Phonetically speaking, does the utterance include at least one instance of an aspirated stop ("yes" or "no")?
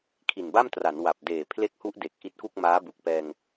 yes